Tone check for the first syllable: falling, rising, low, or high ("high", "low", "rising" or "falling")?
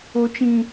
low